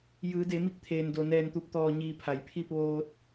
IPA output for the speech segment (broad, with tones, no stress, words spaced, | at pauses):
jɯː˩˧de˩˧mi˧k̚t̪ʰeː˩n do˩nɛː˧˩nt̪u˧˩p̚ t̪ɔː˧˩ɲiː˧˩ pʰa˩jpʰi˥˨p̚ ʋoː˧t̚